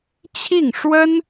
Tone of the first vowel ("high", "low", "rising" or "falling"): falling